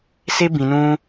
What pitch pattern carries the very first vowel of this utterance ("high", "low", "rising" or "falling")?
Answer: high